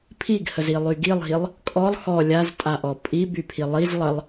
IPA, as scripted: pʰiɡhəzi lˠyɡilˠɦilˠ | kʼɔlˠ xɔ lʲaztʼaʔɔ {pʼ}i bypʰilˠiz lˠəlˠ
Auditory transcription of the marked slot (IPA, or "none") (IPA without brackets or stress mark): pʼ